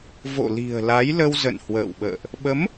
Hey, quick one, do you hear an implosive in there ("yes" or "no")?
yes